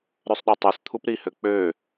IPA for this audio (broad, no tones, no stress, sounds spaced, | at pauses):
ɾ ø sˤ ɗ ø tˤ ø s t̪ʰ u p ɾ i h ø k͡p ø